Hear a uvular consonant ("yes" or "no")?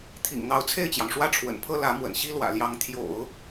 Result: no